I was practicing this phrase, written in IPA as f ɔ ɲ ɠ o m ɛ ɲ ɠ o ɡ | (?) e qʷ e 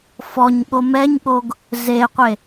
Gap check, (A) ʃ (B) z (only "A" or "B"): B